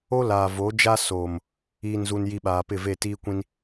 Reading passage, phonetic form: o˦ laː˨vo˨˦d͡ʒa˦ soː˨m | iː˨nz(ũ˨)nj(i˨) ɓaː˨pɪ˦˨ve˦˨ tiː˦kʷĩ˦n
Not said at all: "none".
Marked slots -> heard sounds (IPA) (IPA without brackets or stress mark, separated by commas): u˨, i˨